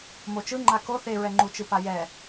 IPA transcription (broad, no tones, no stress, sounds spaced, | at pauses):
m o t͡ʃ ɯ ŋ͡ǃ a k o θ e ɹ ɛ ŋ͡ǃ u t͡ʃ ɯ p a j ɛ